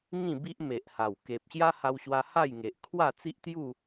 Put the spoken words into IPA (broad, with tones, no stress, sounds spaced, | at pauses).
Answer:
ŋ ĩ˥˧ b i˦ ʔ m e˨ ʔ h a˨˩ w k e˨ p̚ ɕ j a˦ h a˧ w ɕ w a˧ h a˥˧ j ŋ e˨ ʔ kʰ w a˥˧ t͡s i˦ ʔ t̪ j u˥˧